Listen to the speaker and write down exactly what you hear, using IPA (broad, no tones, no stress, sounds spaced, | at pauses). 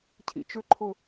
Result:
cʰ ḭ t͡ʃ ʏ ǃʰ ʊ